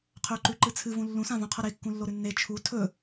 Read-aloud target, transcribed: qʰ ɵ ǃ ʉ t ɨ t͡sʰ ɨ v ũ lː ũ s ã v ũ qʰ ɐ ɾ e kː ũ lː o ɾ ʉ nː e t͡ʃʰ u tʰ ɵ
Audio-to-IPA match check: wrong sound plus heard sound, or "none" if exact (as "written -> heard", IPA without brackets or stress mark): t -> ǃ